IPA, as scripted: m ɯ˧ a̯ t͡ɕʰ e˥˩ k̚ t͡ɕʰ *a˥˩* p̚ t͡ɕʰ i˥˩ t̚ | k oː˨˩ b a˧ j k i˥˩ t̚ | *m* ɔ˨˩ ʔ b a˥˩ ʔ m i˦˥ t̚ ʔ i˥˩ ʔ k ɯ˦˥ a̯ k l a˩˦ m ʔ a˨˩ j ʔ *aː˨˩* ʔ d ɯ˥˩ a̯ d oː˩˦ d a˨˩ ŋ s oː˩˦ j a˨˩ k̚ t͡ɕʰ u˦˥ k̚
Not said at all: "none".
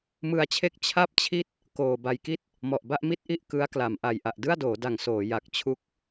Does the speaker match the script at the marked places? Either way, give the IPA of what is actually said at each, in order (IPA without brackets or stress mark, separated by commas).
a˥˩, m, a˨˩